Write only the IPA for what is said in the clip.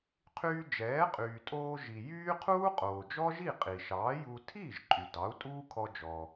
qʰyː˧d͡ʒɛː˩˥ qʼyː˩tʼoː˧ ʒi˩jyː˥ qʰuː˥qʼoː˩d͡ʒɔ˥ʒi˥˩ qʼi˩ʃɑː˩˥ju˧ tʰiː˥˩ʒǃʼy˩ dɑ˩˥u̯tʼuː˥kʰɔ˧d͡ʒɔ˩

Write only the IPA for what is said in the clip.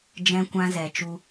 d͡ʒɛ̃˦ kʷã˦zɛ˨t͡ʃu˧

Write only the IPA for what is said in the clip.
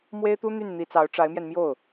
mwe˥ɪ̯t̪u˥n̪y˥˩n n̪i˧˥t͡sɑ˧˥ʊ̯ ʈ͡ʂa˧˥ɪ̯mjɛ˧nmjo˥˩ʊ̯

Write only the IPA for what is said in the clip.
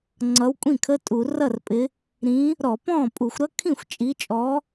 ŋ͡ǀʌː˨˦wkʷʼĩ˥˩kʰə˧˥˧ tʼu˧˩˧rʌ˥˩rpʼɪ˨˦ | ɾĩ˨˦ | ɾɔ˧˩˧pɔ̃ː˥˩pʼu˧˩˧xʷɾʌ˦˥ kʰĩ˥˩xʷt͡ʃʼi˨˦t͡ʃʼɔ˨˦

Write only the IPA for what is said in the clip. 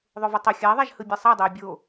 ðˤovʌtˤo xʲa ðˤaʒhɯbʲɛsˤa dˤei̯bʲo

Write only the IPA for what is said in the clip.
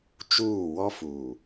t͡ʃuː˦˨ wɔ˦fuː˨

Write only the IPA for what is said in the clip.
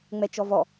ŋ͡mɛt͡ʃɔvɔ

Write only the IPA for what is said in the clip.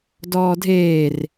dɔːdʱeːr

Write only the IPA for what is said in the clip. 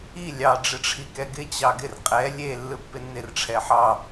i lʲɑ ɖ͡ʐɪʈ͡ʂʰikɛɡɪ t͡ɕɑɡɪr qʼɛ lʲe lːɯpːɪnːɪr ʈ͡ʂʰɛħɑ

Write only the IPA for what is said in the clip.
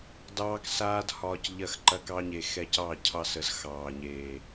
dɑː˦ksaː˦dhɒː˧c ʎɐ˧xǃɐ˧kɑ˧ɲe˨ xɛ˧cɑ˦˨ cʰɑ˧sə˨z xɑː˨ɲeː˨

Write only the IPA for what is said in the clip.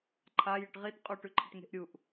ǃʰa jɨʈʁit qʼuʈʉǃʰɐʈŋe̤ʔ ɾʲuʔ

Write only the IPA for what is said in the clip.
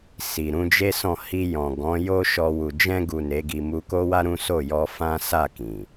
si˨ɾũ˨˦d͡ʒe˦sɔ̃˦˨ hi˧jɔ̃˨ ɡɔ̃˨˦jo˦ʃɔ˧ wu˨ d͡ʒɛ̃˧ɡu˨ ne˨˦ɡi˧ mu˧ko˦wa˦ ɾũ˦so˦˨jɔ˧ fã˦ sa˦˨ kĩ˨

